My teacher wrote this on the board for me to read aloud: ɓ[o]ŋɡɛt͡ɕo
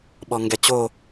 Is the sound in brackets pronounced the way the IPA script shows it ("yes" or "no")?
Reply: no